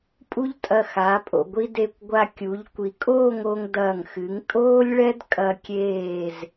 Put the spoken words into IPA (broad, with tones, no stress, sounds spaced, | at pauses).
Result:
pʼ u˥ ʎ tʼ ɐ˧˩ x a˩˧ pʼ o̰˧˩ ɡʷ i˧ d e˧˩ kʷ ɡʷ a˧ kʲ u˩˧ ʎ kʷ i˩˧ kʼ oː˥˧ ŋ o˧ ŋ d ɐː˧˩ ŋ x ɨ˩˧ ŋ tʼ oː˥ lʲ ɭ ɛ˥ d kʼ ɐ˧ kʲ eː˧˩ z